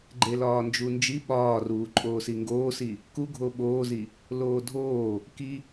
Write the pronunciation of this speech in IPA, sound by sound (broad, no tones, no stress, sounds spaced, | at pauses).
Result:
ɡ͡ǃ e l ɒː n d͡ʒ u n d͡ʒ i ɓ ɒː r uː ǃʼ oː s i ŋ ɡ oː s i | k u ɡʱ o ɓ oː z i | l oː dʱ oː | k i